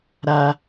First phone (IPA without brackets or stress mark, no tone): ɾ